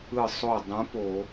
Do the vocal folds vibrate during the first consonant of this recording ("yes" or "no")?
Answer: no